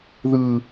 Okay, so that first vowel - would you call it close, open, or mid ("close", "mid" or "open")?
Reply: close